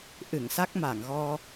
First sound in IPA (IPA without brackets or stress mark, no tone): ʔ